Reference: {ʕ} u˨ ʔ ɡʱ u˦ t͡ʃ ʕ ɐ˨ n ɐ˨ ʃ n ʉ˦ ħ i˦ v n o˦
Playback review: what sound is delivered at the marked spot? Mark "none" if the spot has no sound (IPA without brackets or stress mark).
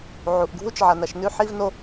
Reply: ʕ